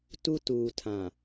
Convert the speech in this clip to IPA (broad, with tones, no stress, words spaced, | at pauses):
tu˦ tuː˨tʰã˨